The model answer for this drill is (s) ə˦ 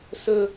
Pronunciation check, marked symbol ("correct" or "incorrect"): correct